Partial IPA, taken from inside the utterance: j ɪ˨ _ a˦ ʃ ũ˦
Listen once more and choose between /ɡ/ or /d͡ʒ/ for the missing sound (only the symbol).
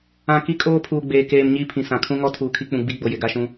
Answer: ɡ